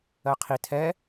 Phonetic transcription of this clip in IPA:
ɜ qʰ i tʰ ɛ

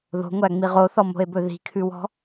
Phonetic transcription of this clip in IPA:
ð o̤ ŋʷ æ ŋ͡m i ʁ o θ ɔ m o̤ e̯ b ɵ ð i̤ kʰ ʉ w ɔ̤

